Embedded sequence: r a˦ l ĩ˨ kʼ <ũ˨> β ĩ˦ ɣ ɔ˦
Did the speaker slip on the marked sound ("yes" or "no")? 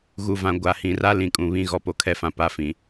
no